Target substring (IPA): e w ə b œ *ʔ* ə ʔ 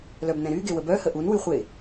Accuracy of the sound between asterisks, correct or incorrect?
incorrect